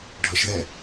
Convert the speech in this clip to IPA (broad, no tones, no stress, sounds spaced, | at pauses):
ɖʱ ʌ ʃ ð ɛ